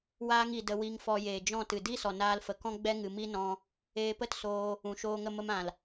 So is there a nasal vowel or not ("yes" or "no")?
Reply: yes